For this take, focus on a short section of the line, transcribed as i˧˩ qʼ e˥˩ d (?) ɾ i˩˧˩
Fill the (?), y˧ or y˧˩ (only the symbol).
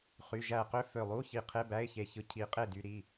y˧